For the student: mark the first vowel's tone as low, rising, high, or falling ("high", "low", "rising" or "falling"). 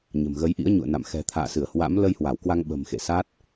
low